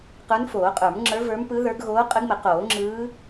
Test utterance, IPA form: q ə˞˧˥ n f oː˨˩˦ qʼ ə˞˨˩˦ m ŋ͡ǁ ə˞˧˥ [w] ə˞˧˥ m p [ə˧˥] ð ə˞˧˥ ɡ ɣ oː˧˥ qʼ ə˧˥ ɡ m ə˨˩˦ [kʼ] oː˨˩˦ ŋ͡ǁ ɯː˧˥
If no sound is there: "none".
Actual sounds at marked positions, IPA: v, ɯ˧˥, q

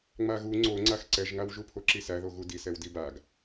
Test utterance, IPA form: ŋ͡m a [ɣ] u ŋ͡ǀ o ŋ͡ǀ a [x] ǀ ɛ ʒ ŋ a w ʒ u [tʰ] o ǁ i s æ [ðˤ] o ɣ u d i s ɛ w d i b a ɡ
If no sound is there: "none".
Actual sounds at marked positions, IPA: ɣ, x, pʰ, ð

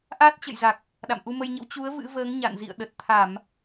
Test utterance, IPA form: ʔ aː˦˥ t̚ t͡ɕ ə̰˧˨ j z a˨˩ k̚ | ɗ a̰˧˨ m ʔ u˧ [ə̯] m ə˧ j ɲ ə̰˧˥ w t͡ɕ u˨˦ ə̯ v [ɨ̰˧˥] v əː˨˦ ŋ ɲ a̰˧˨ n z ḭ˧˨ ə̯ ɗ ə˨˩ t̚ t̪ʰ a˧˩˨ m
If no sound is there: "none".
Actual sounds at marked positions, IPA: none, ɨ̰˧˥

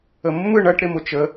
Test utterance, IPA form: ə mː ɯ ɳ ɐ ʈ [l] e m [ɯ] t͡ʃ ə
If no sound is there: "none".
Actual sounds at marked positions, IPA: ɾ, ʊ

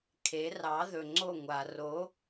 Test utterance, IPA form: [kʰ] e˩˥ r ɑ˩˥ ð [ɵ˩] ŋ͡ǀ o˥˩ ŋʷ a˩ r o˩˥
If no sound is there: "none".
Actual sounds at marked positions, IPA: kʰ, ɵ˩

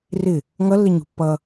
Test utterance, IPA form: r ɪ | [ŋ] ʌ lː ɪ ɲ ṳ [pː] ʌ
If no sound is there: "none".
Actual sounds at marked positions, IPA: ŋ, pː

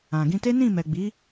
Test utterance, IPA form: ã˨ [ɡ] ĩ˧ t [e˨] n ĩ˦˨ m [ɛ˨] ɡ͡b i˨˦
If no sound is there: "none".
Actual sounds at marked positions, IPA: ɡ, e˦, ɛ˨

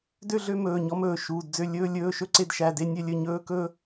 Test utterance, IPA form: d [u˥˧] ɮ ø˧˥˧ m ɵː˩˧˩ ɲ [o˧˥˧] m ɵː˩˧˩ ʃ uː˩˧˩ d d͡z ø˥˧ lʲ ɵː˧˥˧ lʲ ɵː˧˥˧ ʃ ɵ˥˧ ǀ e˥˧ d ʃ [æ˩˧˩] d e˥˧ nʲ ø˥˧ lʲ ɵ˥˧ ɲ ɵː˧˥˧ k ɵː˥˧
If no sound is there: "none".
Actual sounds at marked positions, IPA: ø˥˧, ɔ˧˥˧, æ˩˧˩

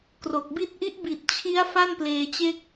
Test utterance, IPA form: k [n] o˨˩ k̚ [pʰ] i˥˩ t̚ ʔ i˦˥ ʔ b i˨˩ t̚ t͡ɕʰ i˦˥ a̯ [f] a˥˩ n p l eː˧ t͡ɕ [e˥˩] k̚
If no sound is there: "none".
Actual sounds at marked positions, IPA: r, b, f, e˥˩

